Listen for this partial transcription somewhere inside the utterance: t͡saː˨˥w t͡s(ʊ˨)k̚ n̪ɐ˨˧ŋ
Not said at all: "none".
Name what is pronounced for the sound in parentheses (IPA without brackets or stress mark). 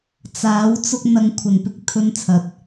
ʊ˧